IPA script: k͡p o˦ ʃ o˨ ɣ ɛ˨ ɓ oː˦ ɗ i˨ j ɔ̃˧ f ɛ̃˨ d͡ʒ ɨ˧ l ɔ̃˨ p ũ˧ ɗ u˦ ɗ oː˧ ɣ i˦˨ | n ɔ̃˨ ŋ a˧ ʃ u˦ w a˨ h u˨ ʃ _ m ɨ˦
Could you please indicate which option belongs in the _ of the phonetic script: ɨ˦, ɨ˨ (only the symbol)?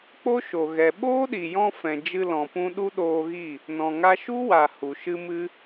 ɨ˦